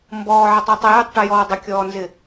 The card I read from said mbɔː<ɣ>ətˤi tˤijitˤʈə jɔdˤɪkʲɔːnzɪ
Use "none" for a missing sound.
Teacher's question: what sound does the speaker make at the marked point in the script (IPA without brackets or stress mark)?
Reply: ʕ